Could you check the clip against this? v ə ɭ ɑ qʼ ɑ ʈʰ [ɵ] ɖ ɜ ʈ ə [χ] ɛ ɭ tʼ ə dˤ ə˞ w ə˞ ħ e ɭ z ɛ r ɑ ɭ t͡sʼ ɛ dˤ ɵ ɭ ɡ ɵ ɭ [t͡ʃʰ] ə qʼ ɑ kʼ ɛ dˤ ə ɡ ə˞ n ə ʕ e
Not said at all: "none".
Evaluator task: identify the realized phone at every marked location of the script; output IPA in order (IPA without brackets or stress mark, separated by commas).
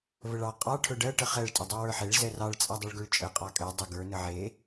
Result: ɵ, χ, t͡ʃʼ